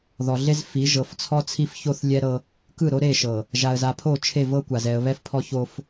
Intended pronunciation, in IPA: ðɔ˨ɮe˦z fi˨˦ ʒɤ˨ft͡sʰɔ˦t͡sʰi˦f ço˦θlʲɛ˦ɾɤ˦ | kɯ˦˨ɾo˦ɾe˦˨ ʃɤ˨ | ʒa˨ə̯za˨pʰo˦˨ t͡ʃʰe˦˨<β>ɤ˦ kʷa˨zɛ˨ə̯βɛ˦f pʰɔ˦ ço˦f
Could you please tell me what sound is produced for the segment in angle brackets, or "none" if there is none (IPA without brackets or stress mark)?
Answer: v